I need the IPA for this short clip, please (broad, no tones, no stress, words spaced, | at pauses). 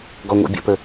ɡɔŋʷḭbʲə̰pə